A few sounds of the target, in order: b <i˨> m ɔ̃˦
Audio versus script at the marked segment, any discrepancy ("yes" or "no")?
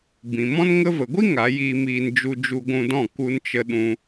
yes